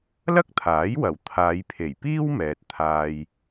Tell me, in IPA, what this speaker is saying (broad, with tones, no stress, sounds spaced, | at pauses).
l ɐ˥ k̚ t̪ʰ aː˨˥ j w ɐ˨˩ w t̪ʰ aː˨˧ j pʰ e˨˩ j p iː˥ w m ɛː˨ t̚ t̪ʰ aː˧ j